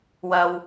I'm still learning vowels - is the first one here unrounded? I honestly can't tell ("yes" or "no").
yes